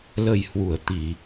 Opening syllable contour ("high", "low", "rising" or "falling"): low